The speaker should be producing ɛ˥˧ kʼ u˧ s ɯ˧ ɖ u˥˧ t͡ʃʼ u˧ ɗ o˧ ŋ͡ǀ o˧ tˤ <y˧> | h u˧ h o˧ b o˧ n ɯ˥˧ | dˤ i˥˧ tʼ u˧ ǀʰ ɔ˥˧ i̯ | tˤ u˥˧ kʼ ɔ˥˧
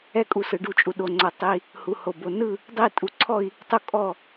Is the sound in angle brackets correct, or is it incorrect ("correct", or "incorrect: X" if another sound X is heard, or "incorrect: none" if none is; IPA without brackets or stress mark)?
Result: incorrect: i˧